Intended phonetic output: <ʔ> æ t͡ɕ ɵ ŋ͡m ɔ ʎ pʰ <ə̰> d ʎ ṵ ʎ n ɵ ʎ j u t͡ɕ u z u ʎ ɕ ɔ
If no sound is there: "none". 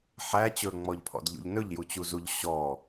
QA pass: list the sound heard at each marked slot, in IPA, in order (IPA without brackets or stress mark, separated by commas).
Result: ħ, ɔ̰